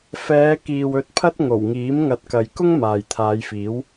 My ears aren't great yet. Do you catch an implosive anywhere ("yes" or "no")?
no